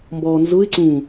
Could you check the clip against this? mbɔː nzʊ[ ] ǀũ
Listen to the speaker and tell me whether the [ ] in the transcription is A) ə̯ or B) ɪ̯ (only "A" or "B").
B